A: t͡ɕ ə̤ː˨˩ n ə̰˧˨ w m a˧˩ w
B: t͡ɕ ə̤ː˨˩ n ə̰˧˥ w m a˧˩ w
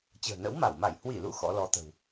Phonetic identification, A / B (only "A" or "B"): B